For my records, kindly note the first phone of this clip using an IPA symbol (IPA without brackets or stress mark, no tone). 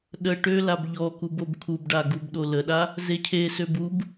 ɗ